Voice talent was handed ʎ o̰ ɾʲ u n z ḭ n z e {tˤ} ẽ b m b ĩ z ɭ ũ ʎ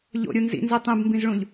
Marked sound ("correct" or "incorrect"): correct